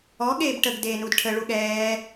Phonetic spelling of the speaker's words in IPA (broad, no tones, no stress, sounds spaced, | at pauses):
ɔ ɠ eː b ʈ ə ɡ d eː n u d ʈʰ ə ɭ u ɠ ɛː